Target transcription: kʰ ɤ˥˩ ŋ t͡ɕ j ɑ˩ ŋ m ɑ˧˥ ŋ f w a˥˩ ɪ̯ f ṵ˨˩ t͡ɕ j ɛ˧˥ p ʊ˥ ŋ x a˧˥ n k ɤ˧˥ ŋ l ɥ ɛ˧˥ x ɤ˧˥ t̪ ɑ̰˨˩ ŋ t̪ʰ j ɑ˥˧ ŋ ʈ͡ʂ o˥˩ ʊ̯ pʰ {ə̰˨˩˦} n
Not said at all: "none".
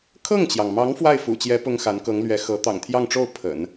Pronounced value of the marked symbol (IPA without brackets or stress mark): ə̰˨˩˦